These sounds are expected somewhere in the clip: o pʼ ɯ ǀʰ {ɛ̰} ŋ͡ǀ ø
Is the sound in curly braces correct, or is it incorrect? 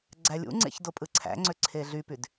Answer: incorrect